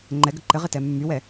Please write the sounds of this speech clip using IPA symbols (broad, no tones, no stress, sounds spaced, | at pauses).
ŋ͡ǃ ɛ ɡ ə ǃ ɘ ʁ ɪ t ɛ mː y w ɛ